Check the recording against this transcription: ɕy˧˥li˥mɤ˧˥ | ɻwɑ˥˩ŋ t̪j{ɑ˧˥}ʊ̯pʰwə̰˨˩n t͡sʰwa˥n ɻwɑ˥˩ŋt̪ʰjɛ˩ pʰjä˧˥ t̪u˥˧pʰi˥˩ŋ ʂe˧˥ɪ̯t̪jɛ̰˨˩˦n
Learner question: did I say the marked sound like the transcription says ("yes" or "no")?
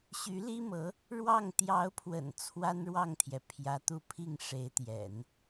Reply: yes